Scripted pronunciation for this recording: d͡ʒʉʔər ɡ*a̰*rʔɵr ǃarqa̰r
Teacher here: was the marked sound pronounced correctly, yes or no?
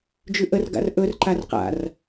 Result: yes